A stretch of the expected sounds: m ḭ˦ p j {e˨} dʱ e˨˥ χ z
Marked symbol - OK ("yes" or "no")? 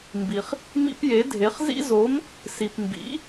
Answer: no